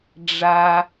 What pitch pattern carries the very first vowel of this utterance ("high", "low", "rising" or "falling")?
low